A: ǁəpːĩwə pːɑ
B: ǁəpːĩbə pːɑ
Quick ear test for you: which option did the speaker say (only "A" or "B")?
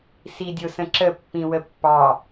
A